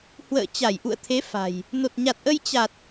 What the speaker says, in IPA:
h w ə̰ː˧˨ t͡ɕ a˧˩ j ʔ ṵ˧˨ ə̯ t̪ʰ e˨˦ f a̤˨˩ j | n o˨˩ t̚ ɲ a˨˩ t̚ ʔ ə˧ j t͡ɕ a˨˩ t̚

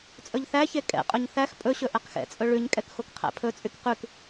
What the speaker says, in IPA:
t͡sʼ ɵ ʎ θ æ ç e kʼ ɛ̰ qʼ ɵ ɲ θ æ x pʼ ɵ ɕ ɵ ʔ ɛ q x ɛ̰ t͡sʼ ɵ ɭ ʉ ɲ kʼ ɛ k x o k qʰ æ̰ pʰ ɵ t͡sʼ y k q ʉ k

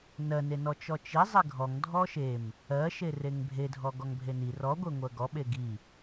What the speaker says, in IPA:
n ɜ n e n ɔ t͡ʃ ɔ t͡ʃ i zˤ e ɡʱ ɔ ŋ dʱ ɔ ʃ e m | ɜ ʃ e r e ŋ bʱ e dʱ ɔ ɡ ɔ ŋ bʱ e n i r ɔ ɡʷ e ŋʷ ɜ ɡ ɔ ɓ e ɡ i

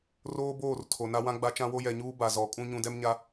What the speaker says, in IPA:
r oː˦ b oː˦˨ r tʰ o˨ n a˦ w ã˦ ɡ͡b a˦ t͡ʃ ã˦ w o˦ j ɛ˨ ɲ uː˦ b a˨ z ɔ˨˦ kʼ ũ˦ ɲ ũ˨ d ɛ˦ m ɲ a˦

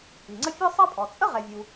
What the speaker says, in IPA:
i˩ ŋ͡ǀ ə˥ fʲ ə˞˦ sˤ ɑ˦ pʼ ɔ˩ t͡sʼ ə˥ ʁ ɛ˨ vʲ u˨

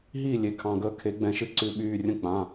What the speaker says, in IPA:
ɦ iː˥˩ lʲ e˨˩˦ kʰ ɑ̃˩˧˩ ɡ əː˥˩ kʰ e˨˩˦ ɡ͡b ɛ̃˨˩˦ ʃ ɨ˨˦ ǀ ʉ˨˦ ɓ yː˩˧˩ rʲ ə̃˥˩ k͡p ã˩˧˩

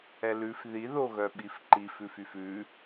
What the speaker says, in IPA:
ɛ l ʉ f ð i ð o ɣ œ ɓ i f ǃ i f ʉ f y f ʉ

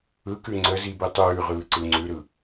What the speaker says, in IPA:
ɯ k ʉ ŋ͡ǀ ə z i b i tˤ ʉː ʁ ɯː ǀ ɯ ŋ͡ǀ ʉ ɾ ɯ

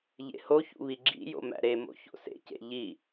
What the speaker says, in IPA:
ʎ ḛ h o ç ṵ β i ɡ͡ǁ ḭ j o̰ m æ̰ ɾ e m o̰ ç o̰ s ḛ c ḛ ʎ i

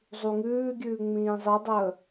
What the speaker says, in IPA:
zˤ u ŋ ʉː ɡʲ ʉː ŋ͡m ĩː zˤ i dˤ əː

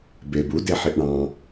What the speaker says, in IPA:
b e b u d e ħ i ʔ ɳ ɑ̃

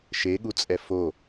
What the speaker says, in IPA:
ʃ e ɠ u t͡sʼ ɛ f o

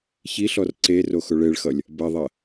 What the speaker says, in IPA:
ç i ɬ ɔ r ǀ e r o x ʊ ɭ e ɭ x ʌ lʲ | b ɐ ðˤ ɐ

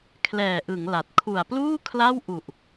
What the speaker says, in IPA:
kʰ l ɛː˨˩ ʔ ɯ˩˦ ŋ l a˨˩ t̚ kʰ u˨˩ a̯ p l uː˥˩ kʰ l a˥˩ w ʔ u˨˩ ʔ

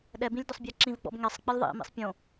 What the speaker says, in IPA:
ɗ ɛ b ĩ lʲ d ʊ sˤ bʲ a ǁ ĩ v ɡ͡b ɔ̰ b ŋ ɛ sˤ k͡p i lʲ ðˤ ḭ m ḭ sˤ pʲ õ

